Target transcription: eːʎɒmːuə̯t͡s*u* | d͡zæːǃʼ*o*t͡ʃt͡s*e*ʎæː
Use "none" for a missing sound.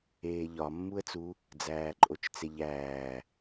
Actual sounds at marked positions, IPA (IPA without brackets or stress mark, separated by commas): u, o, e